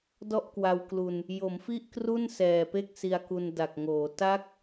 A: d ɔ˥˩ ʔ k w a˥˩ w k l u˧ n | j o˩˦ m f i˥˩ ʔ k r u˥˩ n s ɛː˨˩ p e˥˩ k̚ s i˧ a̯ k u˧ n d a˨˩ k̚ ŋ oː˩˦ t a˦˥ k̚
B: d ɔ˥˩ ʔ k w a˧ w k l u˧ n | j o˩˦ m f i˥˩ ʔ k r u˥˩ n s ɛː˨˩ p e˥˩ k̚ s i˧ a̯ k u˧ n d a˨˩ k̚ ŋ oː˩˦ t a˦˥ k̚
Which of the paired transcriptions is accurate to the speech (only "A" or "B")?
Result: B